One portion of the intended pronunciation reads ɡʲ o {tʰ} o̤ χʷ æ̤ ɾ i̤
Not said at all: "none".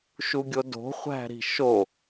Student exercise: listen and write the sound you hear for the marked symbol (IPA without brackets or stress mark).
d